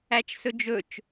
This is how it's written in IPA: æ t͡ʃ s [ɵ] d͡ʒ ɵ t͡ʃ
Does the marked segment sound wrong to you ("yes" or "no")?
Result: no